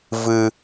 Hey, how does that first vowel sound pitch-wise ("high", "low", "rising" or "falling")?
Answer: low